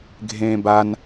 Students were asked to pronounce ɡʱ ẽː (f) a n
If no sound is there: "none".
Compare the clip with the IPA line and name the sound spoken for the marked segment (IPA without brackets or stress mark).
b